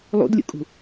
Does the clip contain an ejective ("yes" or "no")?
yes